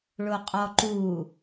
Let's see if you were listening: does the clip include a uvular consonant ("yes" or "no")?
yes